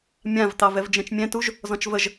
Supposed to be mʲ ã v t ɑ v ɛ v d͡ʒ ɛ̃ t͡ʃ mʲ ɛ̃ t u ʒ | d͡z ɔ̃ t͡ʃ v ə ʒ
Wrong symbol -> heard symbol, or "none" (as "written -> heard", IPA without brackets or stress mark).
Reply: d͡z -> z